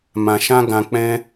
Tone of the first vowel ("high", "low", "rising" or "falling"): low